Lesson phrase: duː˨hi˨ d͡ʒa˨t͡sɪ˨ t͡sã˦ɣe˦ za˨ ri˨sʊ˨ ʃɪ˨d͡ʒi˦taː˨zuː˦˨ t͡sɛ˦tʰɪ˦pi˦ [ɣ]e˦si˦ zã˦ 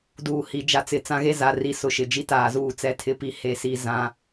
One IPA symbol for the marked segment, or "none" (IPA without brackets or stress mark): h